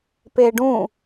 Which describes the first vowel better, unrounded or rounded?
unrounded